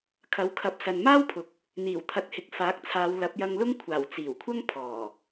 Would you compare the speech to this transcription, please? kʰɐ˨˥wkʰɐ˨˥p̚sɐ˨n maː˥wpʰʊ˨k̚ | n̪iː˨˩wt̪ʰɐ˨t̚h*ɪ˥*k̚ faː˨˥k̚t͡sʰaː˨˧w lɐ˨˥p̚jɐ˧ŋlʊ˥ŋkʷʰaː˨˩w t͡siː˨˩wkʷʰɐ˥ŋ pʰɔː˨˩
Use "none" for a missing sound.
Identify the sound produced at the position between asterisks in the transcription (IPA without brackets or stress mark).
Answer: ɪ˨